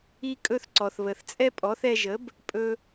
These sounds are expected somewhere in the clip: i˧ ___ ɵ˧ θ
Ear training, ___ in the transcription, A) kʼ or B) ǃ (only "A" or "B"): A